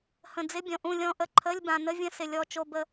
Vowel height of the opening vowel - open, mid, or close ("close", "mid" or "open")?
mid